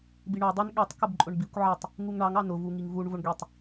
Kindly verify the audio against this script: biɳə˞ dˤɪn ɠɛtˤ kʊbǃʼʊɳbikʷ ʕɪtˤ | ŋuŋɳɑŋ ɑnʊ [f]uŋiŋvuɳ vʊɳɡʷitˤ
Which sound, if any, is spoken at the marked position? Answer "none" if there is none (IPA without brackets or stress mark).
v